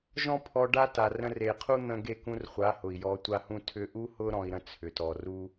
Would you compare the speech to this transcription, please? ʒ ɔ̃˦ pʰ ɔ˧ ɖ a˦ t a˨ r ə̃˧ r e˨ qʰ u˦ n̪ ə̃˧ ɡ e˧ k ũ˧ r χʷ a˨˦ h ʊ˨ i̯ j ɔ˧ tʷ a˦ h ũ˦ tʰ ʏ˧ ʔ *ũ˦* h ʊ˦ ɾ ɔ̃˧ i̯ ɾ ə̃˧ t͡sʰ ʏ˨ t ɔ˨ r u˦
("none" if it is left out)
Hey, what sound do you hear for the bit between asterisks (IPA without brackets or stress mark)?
u˦